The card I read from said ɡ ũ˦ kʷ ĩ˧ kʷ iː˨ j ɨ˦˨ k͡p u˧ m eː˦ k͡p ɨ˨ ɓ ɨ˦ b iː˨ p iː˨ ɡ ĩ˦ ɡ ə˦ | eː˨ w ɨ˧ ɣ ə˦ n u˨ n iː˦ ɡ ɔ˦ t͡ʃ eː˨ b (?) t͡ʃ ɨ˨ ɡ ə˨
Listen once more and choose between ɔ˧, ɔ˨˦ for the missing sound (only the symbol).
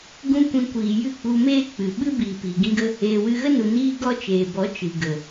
ɔ˨˦